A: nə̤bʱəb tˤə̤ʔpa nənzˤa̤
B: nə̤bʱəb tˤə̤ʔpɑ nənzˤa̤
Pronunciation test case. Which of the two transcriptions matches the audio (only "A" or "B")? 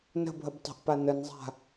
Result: A